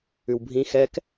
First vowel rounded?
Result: yes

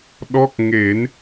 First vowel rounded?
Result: yes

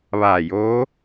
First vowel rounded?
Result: no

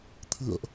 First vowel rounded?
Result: no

